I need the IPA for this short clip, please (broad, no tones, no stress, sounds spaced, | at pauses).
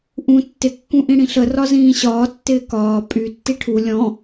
ʔ ũ tː ɪ kː ũ ʔ ĩ ɽ ĩ ɬ ə r ɒ z ĩː ɕ ɒː tː ɪː k ɒː pʼ y tː i ʈʰ u lʲ ɔ̃